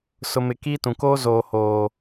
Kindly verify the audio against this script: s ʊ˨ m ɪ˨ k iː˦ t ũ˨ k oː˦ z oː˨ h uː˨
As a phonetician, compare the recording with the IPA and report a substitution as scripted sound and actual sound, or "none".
uː˨ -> oː˨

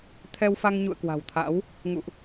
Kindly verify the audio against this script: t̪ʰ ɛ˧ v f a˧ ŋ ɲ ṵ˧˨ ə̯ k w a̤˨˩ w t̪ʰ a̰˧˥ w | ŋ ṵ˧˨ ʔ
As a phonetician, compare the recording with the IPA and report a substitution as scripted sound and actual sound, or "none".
v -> w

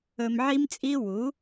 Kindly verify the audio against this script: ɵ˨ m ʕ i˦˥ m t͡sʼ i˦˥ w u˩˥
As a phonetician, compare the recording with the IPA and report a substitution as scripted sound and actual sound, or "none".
none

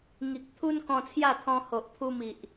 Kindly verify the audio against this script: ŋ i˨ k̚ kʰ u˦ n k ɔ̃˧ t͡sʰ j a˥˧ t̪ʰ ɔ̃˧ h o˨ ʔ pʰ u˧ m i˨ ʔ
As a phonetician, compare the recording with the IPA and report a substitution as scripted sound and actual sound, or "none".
kʰ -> t̪ʰ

